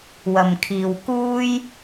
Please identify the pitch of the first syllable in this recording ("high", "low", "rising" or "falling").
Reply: low